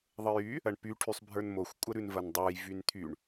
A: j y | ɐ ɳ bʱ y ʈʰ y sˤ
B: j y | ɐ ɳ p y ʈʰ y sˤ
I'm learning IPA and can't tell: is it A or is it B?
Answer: B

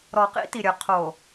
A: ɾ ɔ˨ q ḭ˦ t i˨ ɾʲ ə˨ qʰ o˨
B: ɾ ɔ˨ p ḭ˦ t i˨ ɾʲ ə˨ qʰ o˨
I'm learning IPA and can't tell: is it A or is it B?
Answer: A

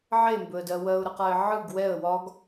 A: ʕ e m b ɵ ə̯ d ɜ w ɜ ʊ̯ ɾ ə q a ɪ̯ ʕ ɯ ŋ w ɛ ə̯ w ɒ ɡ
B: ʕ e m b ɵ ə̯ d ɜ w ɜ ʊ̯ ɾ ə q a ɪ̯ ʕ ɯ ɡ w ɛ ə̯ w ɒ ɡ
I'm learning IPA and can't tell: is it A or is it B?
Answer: B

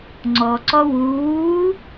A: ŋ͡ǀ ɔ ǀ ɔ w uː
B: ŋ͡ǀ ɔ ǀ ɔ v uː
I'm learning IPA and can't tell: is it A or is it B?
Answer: A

